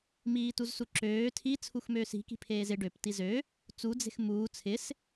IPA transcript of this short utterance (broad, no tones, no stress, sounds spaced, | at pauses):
m iː t u z s u ǁ øː tʰ i t͡sʰ u x m øː s i̤ k i̤ pʰ eː z ɪ ɖ ø p t i z ø | t͡s u d͡z e̤ x m uː t͡sʰ ɪ s